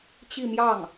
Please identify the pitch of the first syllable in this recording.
falling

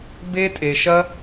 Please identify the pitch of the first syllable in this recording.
high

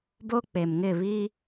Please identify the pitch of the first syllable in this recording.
high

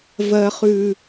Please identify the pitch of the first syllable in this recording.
low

